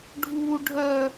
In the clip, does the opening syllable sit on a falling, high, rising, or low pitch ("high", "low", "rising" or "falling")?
high